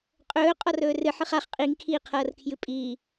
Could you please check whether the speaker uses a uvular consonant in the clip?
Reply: yes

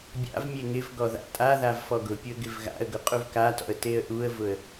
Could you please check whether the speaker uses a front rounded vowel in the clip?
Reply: no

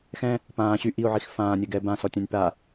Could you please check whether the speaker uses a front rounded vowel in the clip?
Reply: yes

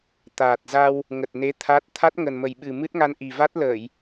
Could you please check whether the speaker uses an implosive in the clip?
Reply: yes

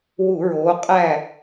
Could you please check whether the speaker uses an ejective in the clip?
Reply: yes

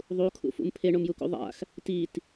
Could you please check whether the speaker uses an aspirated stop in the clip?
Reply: yes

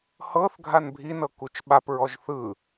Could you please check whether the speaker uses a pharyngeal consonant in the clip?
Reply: no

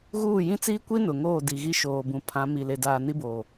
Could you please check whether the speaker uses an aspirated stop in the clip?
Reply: yes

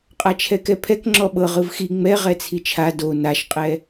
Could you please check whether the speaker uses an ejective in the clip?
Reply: yes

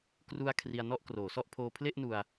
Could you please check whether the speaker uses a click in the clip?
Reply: no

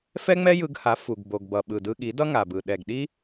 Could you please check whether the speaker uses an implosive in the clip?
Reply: yes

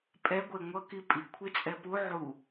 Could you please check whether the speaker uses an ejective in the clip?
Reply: yes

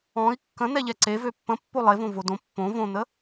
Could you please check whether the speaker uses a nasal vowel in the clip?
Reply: yes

